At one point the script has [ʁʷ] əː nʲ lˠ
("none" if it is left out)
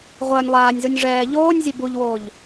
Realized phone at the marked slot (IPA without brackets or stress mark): ʁʷ